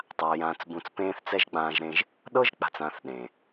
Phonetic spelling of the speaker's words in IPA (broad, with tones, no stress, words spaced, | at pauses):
tˤa˧jãː˧t͡s bũ˧t͡spẽː˦θt͡sɛ˦ʒ ɡ͡bãː˧ʒɾẽ˧ʒ | ɗɤ˦ʒk͡pa̤˨t͡s ãː˧θɗẽː˨